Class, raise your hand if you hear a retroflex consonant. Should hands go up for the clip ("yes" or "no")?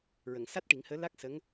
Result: yes